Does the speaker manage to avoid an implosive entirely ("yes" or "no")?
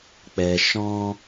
yes